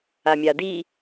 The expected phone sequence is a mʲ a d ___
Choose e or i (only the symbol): i